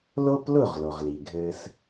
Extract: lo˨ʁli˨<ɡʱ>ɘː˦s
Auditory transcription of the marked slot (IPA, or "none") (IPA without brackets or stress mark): ɡʱ